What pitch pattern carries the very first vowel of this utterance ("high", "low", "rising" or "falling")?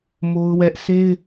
high